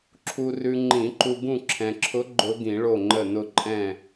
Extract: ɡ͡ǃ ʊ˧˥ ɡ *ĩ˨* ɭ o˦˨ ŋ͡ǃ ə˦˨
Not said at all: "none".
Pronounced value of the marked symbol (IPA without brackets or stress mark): ĩ˨˩˦